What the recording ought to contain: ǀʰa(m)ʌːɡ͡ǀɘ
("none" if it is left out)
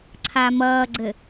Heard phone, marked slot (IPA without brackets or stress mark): m